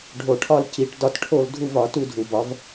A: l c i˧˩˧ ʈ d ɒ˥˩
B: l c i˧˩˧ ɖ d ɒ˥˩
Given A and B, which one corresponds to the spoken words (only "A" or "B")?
A